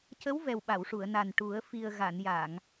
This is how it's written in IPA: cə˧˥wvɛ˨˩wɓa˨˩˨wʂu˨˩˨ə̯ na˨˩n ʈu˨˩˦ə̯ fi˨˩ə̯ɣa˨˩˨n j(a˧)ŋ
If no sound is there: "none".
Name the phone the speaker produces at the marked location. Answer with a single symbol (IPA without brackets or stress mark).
a˨˩˨